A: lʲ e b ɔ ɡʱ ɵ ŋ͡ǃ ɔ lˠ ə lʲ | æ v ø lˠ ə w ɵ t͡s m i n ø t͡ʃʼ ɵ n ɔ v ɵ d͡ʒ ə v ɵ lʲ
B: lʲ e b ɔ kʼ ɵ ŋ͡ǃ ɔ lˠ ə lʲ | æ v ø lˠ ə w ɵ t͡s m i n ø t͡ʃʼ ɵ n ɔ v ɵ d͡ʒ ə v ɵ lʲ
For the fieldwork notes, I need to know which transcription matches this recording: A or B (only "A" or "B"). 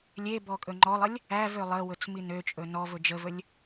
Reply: B